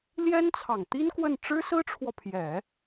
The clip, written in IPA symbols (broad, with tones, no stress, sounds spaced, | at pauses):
l j ɛ˥ n t͡sʰ ɑ˨˩ ŋ t̪ i˥ n k w ə˥˩ n ʈ͡ʂ ɻ̩˥ s ɹ̩˥ ʈ͡ʂʰ w ɔ˨ pʰ j ɛ˨˩˦